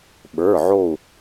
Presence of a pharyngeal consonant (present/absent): present